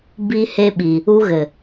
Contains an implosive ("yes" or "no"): yes